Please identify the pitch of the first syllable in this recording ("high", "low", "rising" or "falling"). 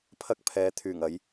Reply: high